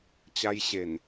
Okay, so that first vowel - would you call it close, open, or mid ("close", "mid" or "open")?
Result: open